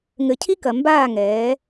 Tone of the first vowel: low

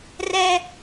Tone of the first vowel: high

